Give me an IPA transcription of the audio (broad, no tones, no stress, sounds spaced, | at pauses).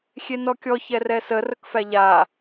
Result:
xʲ e n ɔ kʲ ɔ ç ɛ r ɛ s ə r ə k f æ ʎ a